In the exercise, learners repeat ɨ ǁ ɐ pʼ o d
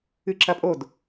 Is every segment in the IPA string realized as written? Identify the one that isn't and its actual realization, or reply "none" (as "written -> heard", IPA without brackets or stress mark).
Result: none